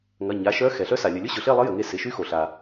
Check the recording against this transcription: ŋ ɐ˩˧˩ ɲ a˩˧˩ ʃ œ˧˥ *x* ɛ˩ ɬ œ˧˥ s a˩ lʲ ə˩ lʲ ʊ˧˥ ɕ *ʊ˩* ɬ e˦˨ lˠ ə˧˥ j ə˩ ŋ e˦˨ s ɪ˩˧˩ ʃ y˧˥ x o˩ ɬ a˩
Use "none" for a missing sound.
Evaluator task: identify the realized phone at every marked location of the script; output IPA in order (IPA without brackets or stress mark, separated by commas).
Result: x, ʊ˩